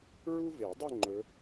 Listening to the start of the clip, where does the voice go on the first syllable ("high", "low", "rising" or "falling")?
high